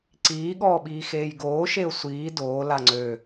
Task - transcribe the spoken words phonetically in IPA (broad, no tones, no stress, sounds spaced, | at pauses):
ǀ iː ɠ ɔː ɓ iː x eː j ɡ oː ʃ e ʊ̯ sʷ iː d oː l a ŋ͡ǀ ø